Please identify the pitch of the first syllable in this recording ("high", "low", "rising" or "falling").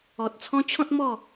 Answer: low